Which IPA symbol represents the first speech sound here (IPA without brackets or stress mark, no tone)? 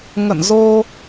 ŋ